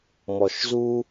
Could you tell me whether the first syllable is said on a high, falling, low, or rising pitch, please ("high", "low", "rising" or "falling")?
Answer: low